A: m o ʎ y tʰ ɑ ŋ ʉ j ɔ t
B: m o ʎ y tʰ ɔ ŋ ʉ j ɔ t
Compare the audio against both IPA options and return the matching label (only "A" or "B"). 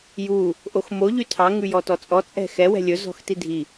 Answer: A